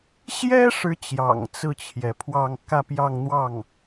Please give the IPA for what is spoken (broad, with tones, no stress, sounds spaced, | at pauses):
ɕ j ɛ˥ ʂ ɻ̩˥ t͡ɕ j ɑ̰˨˩ ŋ t͡s ɹ̩˥˩ t͡ɕʰ j ɛ˩ pʰ w ɑ˥˧ ŋ k ä˥˧ p j ɑ˥˧ ŋ n̪ w ɑ˥˩ ŋ